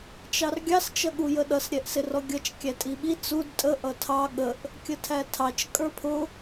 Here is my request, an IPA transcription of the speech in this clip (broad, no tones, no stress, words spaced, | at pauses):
t͡ʃɑrɡʲɑs t͡ʃʌɠujəɗʌs ɾʲɛʔsɪrɔɡʲʌt͡ʃ kʲætʼiɓi t͡sud tʼə ʔʌtʰɑ ɠəʔ | kʲətʰætʰɑt͡ʃ kʼə˞pʰʊ